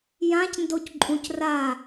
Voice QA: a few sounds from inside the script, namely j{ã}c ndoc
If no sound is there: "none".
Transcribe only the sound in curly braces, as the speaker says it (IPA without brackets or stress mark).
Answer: ã